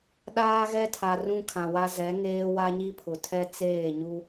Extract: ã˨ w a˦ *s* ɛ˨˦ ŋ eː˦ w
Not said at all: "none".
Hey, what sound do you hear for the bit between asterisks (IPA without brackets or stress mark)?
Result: z